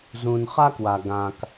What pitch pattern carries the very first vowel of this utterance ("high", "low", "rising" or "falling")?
low